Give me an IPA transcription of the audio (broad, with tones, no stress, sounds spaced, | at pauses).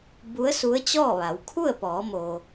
b u˧˥ ə̯ s u˧˥ ə̯ t͡ɕ ɔː˥˨ ʋ a˩˧ w kʰ u˥˨ ə̯ p ɔː˩˧ m o˩